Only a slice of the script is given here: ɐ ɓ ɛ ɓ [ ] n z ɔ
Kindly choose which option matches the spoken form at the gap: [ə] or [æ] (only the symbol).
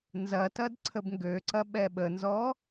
ə